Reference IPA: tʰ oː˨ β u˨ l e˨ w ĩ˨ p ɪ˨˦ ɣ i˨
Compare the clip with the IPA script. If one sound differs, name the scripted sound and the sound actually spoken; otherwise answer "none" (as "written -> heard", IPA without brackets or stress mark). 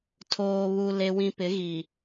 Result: none